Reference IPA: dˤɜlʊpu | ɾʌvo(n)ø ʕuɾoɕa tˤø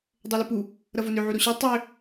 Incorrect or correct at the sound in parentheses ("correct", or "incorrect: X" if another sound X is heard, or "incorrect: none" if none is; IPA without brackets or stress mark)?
correct